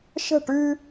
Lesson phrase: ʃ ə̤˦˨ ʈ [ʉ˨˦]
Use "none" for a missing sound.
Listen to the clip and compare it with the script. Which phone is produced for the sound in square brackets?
ʉ˦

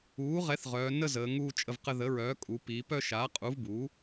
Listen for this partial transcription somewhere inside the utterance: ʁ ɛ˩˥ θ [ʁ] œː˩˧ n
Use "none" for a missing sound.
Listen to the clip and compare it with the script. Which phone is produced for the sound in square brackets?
ʁ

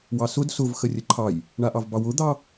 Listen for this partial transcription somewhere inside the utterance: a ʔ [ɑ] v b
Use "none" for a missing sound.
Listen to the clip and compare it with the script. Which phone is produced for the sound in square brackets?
ɑ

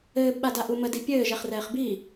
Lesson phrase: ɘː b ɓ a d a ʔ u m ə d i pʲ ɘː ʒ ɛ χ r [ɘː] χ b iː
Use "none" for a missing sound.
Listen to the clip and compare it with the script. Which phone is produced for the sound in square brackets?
ɛː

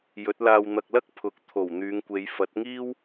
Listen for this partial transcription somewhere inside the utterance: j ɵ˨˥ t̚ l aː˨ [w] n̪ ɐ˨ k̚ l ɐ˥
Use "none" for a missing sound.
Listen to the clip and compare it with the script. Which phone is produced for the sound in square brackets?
w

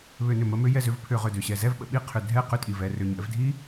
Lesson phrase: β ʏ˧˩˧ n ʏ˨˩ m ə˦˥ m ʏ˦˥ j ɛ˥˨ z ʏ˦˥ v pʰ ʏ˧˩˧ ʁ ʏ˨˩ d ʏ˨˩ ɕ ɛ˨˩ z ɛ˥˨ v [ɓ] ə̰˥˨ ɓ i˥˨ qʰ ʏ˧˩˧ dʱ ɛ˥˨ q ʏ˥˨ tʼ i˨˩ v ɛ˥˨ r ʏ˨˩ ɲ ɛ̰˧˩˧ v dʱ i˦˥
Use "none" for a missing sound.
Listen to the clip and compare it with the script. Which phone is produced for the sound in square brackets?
ɓ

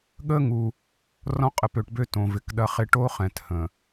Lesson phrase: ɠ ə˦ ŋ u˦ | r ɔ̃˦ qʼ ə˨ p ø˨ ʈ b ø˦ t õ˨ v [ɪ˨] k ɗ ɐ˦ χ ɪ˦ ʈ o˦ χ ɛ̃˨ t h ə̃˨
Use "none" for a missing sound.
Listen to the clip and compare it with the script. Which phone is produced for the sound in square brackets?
ɪ˨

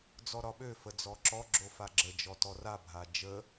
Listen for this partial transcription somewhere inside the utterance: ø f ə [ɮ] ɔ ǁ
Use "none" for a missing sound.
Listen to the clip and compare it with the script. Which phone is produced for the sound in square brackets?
d͡z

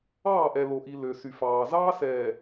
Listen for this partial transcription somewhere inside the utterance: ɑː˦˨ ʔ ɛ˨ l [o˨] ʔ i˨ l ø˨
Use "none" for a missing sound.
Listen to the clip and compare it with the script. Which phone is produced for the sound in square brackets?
o˨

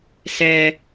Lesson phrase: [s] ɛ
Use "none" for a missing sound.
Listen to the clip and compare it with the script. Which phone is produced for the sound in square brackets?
s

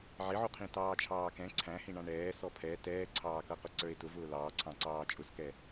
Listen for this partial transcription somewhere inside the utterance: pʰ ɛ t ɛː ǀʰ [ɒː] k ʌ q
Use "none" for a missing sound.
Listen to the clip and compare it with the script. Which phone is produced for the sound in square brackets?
ɑː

